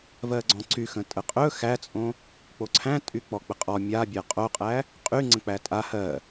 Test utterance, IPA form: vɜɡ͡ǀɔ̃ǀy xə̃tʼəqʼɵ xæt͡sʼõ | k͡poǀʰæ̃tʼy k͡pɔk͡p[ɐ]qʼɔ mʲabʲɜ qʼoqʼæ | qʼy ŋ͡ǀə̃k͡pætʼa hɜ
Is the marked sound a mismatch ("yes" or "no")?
yes